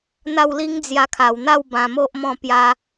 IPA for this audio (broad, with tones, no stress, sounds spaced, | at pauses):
n̪ a˥˧ w l i˦ ŋ d͡z j a˧ kʰ a˨˩ w n̪ a˥˧ w b ã˧ m o˦ ʔ m ɔ̃˥˧ p j a˦